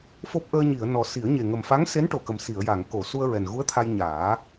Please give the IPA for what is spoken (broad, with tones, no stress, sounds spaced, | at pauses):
f o˦˥ p̚ ʔ əː˧ ɲ i˨˩˨ ə̯ n ɔ˨˩ s i˨˩˦ ə̯ ɲ e˨˩ ŋ ə˨˩ m f a˧˥ ŋ s e˧˥ n ʈ o˨˩ k ə˨˩ m s i˨˩˨ ə̯ j a˨˩˨ ŋ k o˨˩˨ s u˧ ə̯ ɹ ɛ˨˩ n ɣ u˧˥ ə̯ t̪ʰ a˧ j ɲ aː˨˩˦